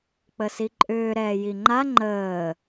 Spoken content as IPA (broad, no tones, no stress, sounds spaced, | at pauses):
k͡p ə s i ǃʼ ʏː ɾ ɛː j i ŋ͡ǃ a ŋ͡ǃ əː